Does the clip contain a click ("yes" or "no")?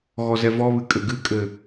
no